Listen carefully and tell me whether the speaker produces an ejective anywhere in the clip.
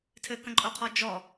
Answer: yes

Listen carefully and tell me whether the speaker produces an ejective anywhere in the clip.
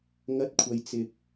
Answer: no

